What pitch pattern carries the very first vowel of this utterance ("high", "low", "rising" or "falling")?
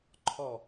falling